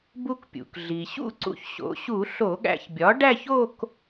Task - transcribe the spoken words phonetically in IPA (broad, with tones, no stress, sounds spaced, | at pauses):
b u˧ k pʲ ṵ˩ k ɮ i˩ ɕ ṵ˥˧ ǀ ṵ˧ ç ɕ o̰˩˥ ɕ u˧˩˧ ɬ o˧˩˧ ɠ æ̰˧ ç bʲ ɒ˩˥ ɖ æ˥˧ ç o˥˧ k